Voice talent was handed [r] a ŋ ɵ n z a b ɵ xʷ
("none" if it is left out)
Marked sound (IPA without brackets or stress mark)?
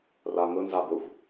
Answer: r